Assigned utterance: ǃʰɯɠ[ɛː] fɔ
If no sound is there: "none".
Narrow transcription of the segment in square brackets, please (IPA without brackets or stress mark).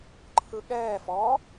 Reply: ɛː